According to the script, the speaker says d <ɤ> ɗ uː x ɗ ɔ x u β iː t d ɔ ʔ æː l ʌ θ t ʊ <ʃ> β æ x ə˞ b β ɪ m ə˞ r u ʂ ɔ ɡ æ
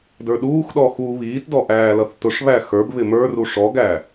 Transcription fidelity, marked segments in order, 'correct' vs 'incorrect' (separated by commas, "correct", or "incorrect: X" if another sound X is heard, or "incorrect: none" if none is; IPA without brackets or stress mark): incorrect: ə˞, incorrect: ʂ